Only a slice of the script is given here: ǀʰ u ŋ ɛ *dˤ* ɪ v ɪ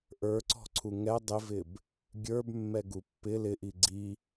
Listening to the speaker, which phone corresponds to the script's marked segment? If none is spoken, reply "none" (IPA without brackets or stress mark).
dˤ